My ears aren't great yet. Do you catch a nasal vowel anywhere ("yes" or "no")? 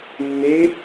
no